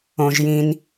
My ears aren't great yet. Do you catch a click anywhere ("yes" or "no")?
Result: no